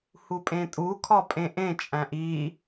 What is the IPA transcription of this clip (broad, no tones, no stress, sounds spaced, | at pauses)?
h u pʼ ẽ tʼ u kʰ ɒ pʼ ẽ ʔ ẽ t͡ʃʼ æ̃ ʔ i